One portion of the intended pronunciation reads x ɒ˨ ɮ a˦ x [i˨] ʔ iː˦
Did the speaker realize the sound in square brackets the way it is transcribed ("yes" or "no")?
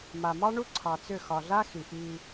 yes